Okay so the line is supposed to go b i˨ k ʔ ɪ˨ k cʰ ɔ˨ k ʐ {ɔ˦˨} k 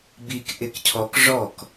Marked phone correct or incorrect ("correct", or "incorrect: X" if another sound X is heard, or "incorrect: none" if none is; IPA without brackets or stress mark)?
correct